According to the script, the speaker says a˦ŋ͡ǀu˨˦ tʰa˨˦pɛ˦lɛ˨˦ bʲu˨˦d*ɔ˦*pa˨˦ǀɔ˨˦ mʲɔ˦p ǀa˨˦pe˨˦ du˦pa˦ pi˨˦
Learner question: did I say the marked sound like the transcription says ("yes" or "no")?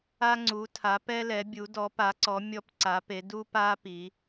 no